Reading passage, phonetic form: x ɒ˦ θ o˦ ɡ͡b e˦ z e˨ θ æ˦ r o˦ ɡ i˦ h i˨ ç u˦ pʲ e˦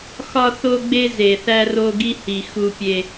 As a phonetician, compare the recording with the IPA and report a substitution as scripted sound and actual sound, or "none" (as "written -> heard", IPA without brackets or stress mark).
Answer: ç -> x